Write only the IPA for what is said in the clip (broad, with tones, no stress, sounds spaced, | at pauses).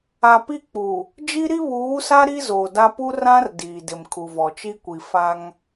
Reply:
a˨ p i˦ k͡p u˨ | d͡ʒ i˦ ɾ i˦ β uː˨˦ s a˦ ɾ i˦ z oː˨ d a˦ p u˦ r ã˦ r d iː˨ d ɪ˨ m kʰ u˨ v ɔ˨ t͡ʃ i˦ kʷ i˨ f a˦ ŋ